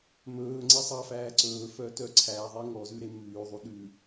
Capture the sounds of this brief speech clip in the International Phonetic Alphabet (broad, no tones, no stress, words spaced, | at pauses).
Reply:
mɵː ŋ͡ǀesˤɑfæː ǀɵːfœ tœǀʰæðˤi ŋɔzʉ ɾemʉːðˤu ɗʉ